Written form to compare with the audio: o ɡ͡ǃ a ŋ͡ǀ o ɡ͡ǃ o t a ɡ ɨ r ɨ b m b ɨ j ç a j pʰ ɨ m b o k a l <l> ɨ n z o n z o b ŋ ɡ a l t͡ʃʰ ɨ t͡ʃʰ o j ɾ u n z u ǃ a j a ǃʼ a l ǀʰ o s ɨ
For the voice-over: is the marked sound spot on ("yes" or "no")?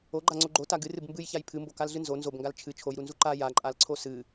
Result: no